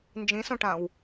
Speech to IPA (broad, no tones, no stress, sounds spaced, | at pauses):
n d͡ʒ ĩ s õ ʈ ã w